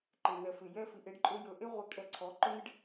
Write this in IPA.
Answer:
ǃɪ˨nɛ˨fɪ˨ jɛ˦fi˧ʔ e˦ɖǃʼø˦jɵ˧ ʔe˦ʁʷɛ˧ kʼɛ˧ǀʰɔ˨˦ ǃɵ˦n̪ɪ˦ɖ

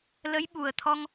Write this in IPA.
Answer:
lə˨˦jɓu˨˩ə̯ t̪ʰɔ˧ŋ

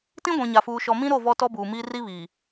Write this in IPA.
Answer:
tĩ˦ɡʷĩ˨ɲa˨fuː˨ ʃɔ˨mĩ˦ɾo˦˨ vɔ˦tɔ˦buː˨miː˦ ri˦βiː˨

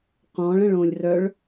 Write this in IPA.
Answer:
qɔ̃ɭə̃ɭõlʲ rœɭ

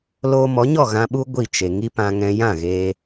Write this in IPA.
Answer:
loː˧mɔ˨˦ɲɔ˦˨ ɣã˧ɓu˦ ɡʷi˦˨t͡ʃe˨ ŋi˦pã˧ ŋɛ̃˧ jã˦˨ɣeː˧

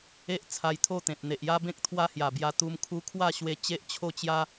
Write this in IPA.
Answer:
e˦ʔ t͡sʰa˧jt̪ʰo˥˧t̪ẽ˨t̚ n̪e˨ʔja˦bẽ˦k̚ t̪ʰwa˦hja˨˩bja˧ t̪u˧mkʰu˦ kʰwa˥˧ ɕwe˦ t͡ɕe˦ʔt͡ɕʰo˥˧t͡ɕja˦

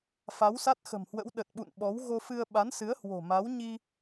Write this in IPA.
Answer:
fa˨˦wsa˦˥t̚xə̤˨˩mhwə̰˧˥w ɗə˨˩t̚ɓṵ˧˨n ɓɔ˨˦w ɣo˧fɨ˧ə̯ ɓa˨˦nsɨ˨˦ə̯ hwo̤˨˩ma˨˦wɲi˧

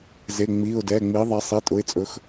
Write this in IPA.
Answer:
ze˩˧˩ ŋ͡mi˩˧˩ʊ̯dɛ˩˧˩ ŋ͡mi˩˥ðˤɛ˩˥ sˤi˩˧˩tʼʊ˩˧˩ɪ̯t͡sʼɵ˩˥x

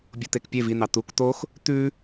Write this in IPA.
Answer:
bʲot̪ekpʲev in̪ɑ t̪uk t̪ox | t̪ʉ

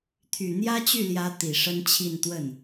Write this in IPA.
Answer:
t̪ʰy˨˩ n̪jä˥t͡ɕy˥˩ljä˧˥ t̪i˨˩ʂə˥nt͡ɕʰi˥˧n t̪wə˥˩n

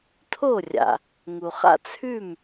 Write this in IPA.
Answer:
tʰo˥˩rʲa̰˩ | ŋu˩χa̰˥˩ t͡sʰʉ˥˩m

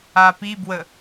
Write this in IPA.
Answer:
apibwə

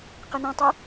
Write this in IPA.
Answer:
qenɛ̃tˤɛ

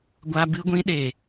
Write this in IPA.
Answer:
ɡʷa˧bɨ˧ɡʷĩ˧ ɗe˨

